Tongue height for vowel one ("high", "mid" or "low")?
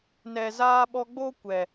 mid